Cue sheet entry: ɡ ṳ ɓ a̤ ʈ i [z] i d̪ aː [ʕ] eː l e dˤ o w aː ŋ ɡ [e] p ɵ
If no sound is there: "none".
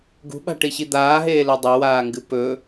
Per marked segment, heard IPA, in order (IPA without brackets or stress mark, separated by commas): ɕ, ɦ, ɨ